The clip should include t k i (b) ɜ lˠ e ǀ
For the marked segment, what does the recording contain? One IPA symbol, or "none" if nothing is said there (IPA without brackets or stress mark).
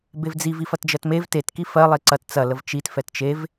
f